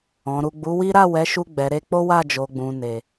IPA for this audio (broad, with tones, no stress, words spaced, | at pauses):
ɔ̃˨ɾu˨ɡ͡bu˨˦wi˦ ɾa˦˨ wɛ˨˦ʃu˧ ɡ͡bɛ˨ɾe˧k͡po˦wa˦˨ d͡ʒo˨ɡ͡bũ˨ne˨